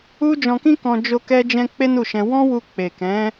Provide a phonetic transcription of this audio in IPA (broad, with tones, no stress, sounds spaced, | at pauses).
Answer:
u˦ d͡ʒ ɔ̃˧ k ĩ˦ k ɔ̃˧ d͡ʒ o˦ k ɛ˦ d͡ʒ ɛ̃˦ k͡p e˦ n u˦˨ ʃ ɛ̃˧ w ɔ̃˦ w u˧ k͡p e˨ k ɛ̃˨˦